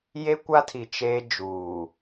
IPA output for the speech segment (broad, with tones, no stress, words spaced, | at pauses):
je˦kʷa˦tʰi˨ t͡ʃeː˦d͡ʒuː˨